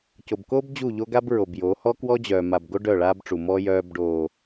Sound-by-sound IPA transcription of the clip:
co˨bko˦b d͡ʑu˦˨ʎo˦ɡa˦b ɹo˨bjoː˨˦ hɔ˦kwɔ˦d͡ʑœː˨ma˨b ɡo˦ɖœ˦˨ ɭaː˦bʈ͡ʂu˨mɔ˦ jœː˦b ɖoː˦

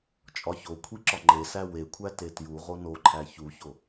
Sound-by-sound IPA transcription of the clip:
t͡ʃʼɒçokʷʰiǁɒ ŋ͡ǃesæ wekʷʰæ tetju ʁonoǃʰæ çuço

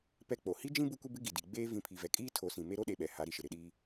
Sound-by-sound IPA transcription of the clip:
pɛ˦k͡po˨ hi˦d͡ʒĩ˦ bu˦kʷi˦bɪ˦ ɡi˨di˨ɡ͡beː˦ vĩ˨˦pʰi˨vɛ˨kʼiː˦ tʰo˨˦sĩ˨ me˦ɾo˦ ɗe˦ɓɛ˨ ha˨˦ɾi˨ʃɪ˨ ɾɪ˨ɗiː˦

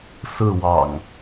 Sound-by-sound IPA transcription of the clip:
sɹ̩˥˨wɑ̰˨˩ŋ

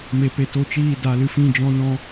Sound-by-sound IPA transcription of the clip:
me˨pe˨ to˦t͡ʃiː˦˨ da˨˦lɨ˧ fĩ˦˨ d͡ʒɔ̃˦nɔ̃˦

